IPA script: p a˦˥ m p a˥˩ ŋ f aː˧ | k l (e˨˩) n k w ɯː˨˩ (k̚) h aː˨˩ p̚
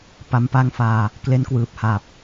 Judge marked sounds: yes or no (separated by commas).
no, no